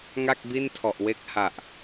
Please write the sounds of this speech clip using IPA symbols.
ŋa˥˩k̚bi˥˩ntʰɔ˨˩ʔwe˦˥k̚ ha˨˩ʔ

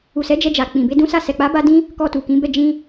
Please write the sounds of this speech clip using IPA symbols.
u˨sɛ˨˦d͡ʒɛ˧d͡ʒa˨ k͡pĩ˨be˧ dũ˦sa˦˨ sɛ˨k͡pa˨˦ba˧dĩ˧ | kɔ˧tu˨kĩ˨˦bɛ˦˨ d͡ʒĩ˧

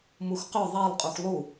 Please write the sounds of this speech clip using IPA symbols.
muxqʏ ðˤelˠ qʼuxlˠu

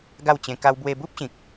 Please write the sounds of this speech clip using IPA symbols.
ɡa˥˧wt͡ɕẽ˧ka˦w bwe˧bu˦p̚ɕĩ˨k̚

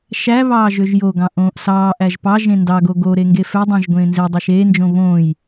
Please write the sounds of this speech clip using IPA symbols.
ʃæ βɑːʒøʒjoɡɑ̃ ʔõːʔsɑːʔæʒ pɑ ʒẽndɑɡo ɡoɾe ŋɡefødˤɑ̃ʒ ɡʷẽːnzedˤæʃ eːnd͡ʒõ βõːj

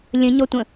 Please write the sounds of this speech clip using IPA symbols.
lʲə̃ɲɔtʷə̃

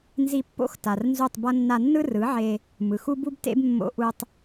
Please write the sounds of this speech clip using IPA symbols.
nzi˧pːo̰˦x ta˨rnzu˦˨tˤbʌ˦ nːa˧nːɯ˦rɯ˨˦ʕe˧ | mɯ˨xu˦bu˦btḛ˦b mːo̰˧ʔu˧tˤ

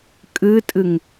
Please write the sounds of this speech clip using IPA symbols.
kʼɨtʼɨŋ

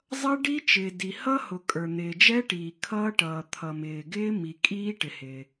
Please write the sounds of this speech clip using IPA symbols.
zˤʌ˦˥ɖi˦˥t͡ʃɪː˩ di˩ hʌ˦˥hʊ˩ kʼə˞˩n̪ɪː˩d͡ʒɛ˦˥ʈiː˩ kʰʌː˦˥ʈʌː˩ t̪ʰʌ˩mɪː˩ɡɪː˦˥ mi˩kʼiː˦˥ ʈɪ˩hɪ˩

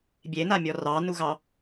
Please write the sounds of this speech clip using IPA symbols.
bʲenamʲɔ rɑnuɣɑ

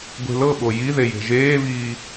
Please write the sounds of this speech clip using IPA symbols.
ɡʷe̤lɤɓo jiðe je̤ʒeːviː

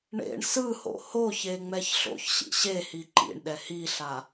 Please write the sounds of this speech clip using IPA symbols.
ɳḛɳ sɯho̰ hoçe ŋ͡mɛçɬo̰çɕḭ ɕehi ǃḭɳɗɛ hiɬa

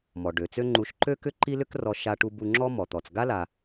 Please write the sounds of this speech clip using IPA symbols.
mɔ˩ ɖø˩t͡sø˥ŋ͡ǃu˧ʃ ǃø˥ kʏ˥ǃi˥lʏ˥krɔ˧ ʃa˧ʈu˧ bu˧ ŋ͡ǁɔ˥mɔ˩t̪ɔ˩t͡s ɡa˥la˩

